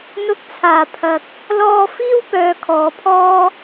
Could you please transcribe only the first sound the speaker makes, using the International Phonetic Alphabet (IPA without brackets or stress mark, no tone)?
n̪